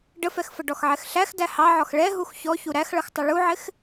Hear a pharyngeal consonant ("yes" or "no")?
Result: yes